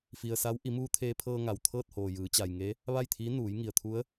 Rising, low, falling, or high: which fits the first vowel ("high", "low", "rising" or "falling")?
low